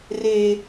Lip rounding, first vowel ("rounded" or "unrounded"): unrounded